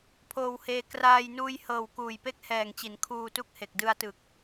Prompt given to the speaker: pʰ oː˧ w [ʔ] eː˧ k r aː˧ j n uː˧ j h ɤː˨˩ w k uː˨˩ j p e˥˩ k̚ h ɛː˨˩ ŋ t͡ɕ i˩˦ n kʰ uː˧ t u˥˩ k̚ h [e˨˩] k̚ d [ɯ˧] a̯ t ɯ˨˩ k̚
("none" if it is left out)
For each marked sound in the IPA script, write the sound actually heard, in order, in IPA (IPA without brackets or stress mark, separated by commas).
h, e˨˩, ɯ˧